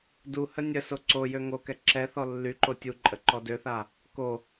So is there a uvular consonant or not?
no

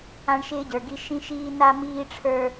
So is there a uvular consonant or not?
no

